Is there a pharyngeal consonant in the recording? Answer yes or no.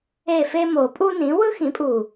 no